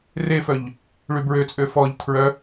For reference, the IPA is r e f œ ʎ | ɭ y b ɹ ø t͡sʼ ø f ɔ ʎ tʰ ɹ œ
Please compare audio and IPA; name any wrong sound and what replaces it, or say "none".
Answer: none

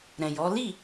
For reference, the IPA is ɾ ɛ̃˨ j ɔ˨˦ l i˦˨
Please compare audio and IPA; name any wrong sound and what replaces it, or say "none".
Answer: none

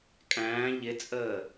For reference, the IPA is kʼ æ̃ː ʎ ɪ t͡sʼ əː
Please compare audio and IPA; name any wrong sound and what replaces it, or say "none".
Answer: none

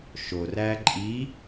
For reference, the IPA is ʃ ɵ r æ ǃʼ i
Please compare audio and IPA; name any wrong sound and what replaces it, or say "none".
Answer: ɵ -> o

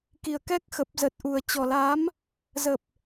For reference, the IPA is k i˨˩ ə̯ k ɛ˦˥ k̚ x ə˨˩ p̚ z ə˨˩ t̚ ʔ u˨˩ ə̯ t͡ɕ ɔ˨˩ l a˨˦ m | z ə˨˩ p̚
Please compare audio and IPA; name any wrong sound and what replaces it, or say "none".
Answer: none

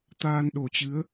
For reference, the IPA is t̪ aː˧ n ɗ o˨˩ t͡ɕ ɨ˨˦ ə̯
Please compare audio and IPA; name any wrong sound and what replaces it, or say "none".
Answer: none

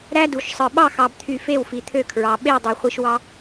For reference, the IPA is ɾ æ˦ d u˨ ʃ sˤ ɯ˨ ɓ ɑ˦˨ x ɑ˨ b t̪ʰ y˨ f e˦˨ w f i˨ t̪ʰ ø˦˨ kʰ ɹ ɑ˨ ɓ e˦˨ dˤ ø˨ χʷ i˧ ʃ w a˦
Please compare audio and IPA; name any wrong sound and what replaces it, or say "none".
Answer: a˦ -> ɑ˦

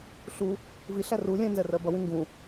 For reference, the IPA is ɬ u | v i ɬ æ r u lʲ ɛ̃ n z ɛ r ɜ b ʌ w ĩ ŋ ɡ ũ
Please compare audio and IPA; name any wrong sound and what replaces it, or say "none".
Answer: none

